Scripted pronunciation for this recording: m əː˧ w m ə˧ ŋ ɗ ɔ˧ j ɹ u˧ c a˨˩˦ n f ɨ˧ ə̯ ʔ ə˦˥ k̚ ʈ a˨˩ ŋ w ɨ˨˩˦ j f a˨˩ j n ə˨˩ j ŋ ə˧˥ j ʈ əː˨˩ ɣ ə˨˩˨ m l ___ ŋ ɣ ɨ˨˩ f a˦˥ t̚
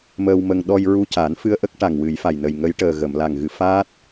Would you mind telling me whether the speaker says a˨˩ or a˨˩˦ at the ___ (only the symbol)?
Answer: a˨˩